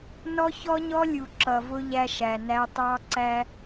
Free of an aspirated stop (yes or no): yes